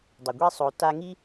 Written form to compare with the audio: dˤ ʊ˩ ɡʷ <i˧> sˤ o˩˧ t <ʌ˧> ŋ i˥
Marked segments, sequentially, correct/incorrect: correct, incorrect

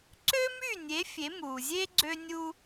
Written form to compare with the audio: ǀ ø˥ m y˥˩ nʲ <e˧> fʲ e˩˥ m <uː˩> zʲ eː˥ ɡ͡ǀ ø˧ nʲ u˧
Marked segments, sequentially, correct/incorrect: incorrect, correct

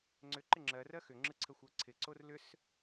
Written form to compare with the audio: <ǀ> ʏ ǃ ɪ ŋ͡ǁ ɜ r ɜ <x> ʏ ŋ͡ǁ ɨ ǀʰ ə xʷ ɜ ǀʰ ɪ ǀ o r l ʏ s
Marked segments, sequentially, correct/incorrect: incorrect, correct

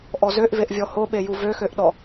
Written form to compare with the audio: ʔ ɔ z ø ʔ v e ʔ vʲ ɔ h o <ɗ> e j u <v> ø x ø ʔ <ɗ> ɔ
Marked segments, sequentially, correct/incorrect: incorrect, correct, correct

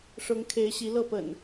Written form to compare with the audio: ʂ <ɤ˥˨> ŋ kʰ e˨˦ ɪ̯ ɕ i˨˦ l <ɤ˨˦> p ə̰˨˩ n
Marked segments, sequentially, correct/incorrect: incorrect, incorrect

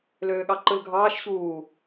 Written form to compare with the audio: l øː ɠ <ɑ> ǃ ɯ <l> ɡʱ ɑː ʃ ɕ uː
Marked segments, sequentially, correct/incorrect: correct, correct

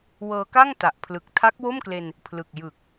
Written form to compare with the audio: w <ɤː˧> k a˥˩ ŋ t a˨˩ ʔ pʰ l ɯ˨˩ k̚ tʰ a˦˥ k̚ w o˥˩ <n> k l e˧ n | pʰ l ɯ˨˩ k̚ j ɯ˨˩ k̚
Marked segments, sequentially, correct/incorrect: correct, incorrect

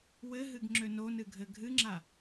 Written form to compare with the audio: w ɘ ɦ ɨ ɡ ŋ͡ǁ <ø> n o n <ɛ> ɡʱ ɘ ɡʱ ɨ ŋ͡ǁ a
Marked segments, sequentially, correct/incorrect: correct, incorrect

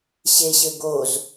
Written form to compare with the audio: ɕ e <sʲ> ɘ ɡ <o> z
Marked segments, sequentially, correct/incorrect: incorrect, correct

